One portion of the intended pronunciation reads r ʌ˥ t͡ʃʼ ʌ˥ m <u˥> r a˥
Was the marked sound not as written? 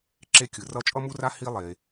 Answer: no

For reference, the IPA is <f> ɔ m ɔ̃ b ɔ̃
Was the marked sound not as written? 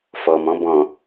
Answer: no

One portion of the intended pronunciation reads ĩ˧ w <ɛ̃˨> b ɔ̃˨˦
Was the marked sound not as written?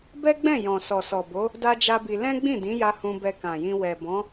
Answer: yes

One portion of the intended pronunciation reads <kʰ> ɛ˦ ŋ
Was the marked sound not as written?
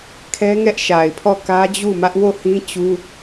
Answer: no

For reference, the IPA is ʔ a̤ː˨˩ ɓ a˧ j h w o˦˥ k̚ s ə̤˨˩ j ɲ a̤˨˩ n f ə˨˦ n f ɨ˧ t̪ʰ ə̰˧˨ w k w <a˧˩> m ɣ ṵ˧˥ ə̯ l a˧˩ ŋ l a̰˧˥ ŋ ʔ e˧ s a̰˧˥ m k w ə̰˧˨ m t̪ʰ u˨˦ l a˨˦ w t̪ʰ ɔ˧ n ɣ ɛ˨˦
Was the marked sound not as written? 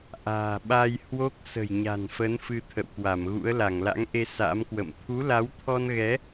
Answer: no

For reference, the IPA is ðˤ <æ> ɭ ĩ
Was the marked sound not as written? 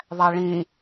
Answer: no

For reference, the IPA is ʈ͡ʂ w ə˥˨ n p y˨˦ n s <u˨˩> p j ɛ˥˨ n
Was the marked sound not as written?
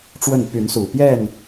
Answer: no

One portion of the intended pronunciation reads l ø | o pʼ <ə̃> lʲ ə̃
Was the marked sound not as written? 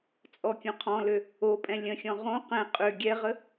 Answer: yes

